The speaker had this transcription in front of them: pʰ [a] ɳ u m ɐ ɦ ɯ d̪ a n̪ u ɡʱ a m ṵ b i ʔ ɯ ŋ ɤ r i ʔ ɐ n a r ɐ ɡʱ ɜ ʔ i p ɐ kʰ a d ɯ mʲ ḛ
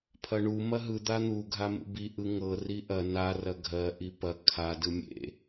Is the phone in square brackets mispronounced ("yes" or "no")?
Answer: yes